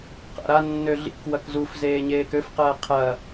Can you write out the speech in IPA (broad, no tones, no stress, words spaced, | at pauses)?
qa̰ɾanːø ɮḭk wɐkzufzeː ɲeːkøfqɐː qʰɐ